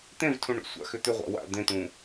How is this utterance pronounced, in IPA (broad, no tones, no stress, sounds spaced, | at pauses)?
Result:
t̪ ẽ v tʰ ũ ɳ ṵ sʷ a̰ x ʏ t̪ ʏ ʁʷ a̰ w a̰ d̪ ẽ t̪ ũ